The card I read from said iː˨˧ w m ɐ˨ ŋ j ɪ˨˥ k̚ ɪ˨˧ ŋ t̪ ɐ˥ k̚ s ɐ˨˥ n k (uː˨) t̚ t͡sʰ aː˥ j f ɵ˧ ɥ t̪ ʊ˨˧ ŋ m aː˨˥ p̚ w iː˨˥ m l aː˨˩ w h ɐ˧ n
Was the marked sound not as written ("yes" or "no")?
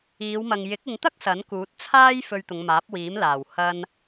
yes